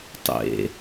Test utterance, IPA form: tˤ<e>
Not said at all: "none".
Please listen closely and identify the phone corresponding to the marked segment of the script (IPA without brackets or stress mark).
ḛ